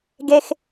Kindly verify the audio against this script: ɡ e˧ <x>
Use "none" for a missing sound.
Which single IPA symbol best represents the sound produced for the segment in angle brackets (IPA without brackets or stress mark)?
x